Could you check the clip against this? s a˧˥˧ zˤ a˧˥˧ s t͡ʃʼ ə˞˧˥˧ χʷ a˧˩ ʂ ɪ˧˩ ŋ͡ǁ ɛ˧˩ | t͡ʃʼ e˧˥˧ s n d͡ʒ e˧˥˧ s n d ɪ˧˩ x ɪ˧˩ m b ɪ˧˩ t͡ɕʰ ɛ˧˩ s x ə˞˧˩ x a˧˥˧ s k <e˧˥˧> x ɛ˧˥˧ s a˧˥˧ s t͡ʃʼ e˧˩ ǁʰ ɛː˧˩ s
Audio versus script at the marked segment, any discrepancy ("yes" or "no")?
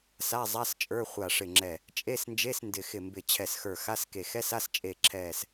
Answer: yes